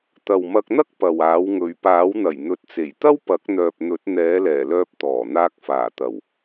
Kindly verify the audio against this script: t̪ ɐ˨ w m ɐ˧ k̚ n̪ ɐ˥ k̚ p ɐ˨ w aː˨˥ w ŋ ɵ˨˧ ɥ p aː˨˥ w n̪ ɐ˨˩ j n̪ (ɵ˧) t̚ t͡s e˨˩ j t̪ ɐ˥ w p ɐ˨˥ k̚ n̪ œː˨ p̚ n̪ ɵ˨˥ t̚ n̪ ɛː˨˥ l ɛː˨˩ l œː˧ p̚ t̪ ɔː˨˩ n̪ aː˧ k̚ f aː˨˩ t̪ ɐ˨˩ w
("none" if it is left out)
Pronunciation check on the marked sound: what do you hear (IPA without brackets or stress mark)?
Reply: ɵ˨